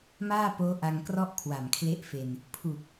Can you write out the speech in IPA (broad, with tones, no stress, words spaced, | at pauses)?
maː˥˩poː˦˥ ʔa˧ŋkrɔ˥˩ʔ kʰwa˨˩mkʰle˥˩ʔfe˧n | pʰu˨˩k̚